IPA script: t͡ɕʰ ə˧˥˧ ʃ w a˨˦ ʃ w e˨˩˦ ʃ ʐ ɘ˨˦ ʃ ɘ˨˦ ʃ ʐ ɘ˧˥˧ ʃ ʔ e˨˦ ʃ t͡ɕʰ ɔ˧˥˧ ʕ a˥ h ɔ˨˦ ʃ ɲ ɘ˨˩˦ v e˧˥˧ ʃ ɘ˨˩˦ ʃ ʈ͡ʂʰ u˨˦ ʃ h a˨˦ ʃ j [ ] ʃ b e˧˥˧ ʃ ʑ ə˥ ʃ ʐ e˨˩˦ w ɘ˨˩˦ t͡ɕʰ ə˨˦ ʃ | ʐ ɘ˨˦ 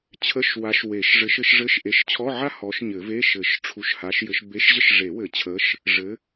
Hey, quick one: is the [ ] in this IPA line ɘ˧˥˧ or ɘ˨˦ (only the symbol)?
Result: ɘ˨˦